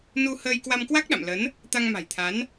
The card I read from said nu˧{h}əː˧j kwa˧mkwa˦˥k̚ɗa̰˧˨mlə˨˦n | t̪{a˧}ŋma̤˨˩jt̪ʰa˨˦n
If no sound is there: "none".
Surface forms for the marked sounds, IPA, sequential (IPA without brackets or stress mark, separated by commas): h, a˧